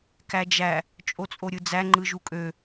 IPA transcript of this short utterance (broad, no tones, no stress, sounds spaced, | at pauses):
k æ d͡ʒ æ | t͡ʃʼ o t͡sʼ o ɾʲ ɯ d͡z æ ŋ͡ǃ ɯ ʒ u kʼ ø